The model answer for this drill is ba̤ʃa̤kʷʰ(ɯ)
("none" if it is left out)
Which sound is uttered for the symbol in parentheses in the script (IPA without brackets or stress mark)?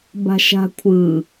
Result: ɯ